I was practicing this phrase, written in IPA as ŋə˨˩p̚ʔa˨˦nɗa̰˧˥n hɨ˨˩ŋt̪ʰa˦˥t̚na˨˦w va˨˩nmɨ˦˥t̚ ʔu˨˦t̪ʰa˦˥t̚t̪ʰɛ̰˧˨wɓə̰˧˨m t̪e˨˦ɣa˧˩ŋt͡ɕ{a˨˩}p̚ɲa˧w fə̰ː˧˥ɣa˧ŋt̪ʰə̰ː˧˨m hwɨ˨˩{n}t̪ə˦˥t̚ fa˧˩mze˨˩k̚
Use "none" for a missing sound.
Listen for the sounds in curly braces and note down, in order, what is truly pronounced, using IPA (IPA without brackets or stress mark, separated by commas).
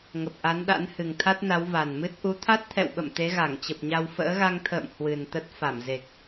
ə˨˩, n